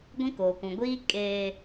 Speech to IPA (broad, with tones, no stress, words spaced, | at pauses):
ɡʷĩ˦koː˨kũ˨ɡʷiː˦ kʼeː˨